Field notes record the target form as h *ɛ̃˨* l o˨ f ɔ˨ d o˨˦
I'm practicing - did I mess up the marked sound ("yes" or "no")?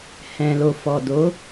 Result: no